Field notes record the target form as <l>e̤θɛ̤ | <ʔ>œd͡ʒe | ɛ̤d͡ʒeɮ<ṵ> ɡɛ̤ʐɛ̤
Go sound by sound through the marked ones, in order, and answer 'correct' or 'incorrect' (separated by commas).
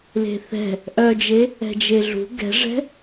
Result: correct, correct, incorrect